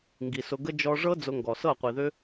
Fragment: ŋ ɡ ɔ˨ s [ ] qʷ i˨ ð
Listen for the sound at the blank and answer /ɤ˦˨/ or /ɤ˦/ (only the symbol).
ɤ˦˨